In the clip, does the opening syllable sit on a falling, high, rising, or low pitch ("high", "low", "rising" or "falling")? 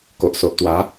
low